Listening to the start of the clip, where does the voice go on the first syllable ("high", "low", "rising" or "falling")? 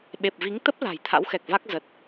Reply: low